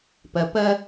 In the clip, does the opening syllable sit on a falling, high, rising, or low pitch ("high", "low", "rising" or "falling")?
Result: low